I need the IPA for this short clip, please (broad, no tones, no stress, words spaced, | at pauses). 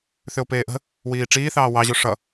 θʏo̯peːʔə̤ | wiːʈ͡ʂiːθɑː wɑʑo ʂʌ